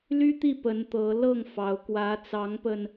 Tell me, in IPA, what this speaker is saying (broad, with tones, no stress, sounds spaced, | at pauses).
l y˥ t̪ i˥˩ p ə˧˥ n t̪ ɤ˧˥ l ɤ˥˩ ŋ f ɑ˧˥ ʊ̯ k w ä˧˥ t͡s ɑ˧˥ ŋ p ə˧ n